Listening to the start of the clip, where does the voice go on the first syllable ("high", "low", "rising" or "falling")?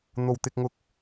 low